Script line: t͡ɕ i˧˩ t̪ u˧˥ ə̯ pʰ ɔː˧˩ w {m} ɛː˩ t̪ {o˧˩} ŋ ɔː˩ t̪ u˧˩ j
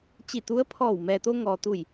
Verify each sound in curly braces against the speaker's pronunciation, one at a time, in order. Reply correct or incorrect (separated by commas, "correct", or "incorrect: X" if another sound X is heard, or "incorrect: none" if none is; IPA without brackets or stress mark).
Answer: correct, incorrect: o˧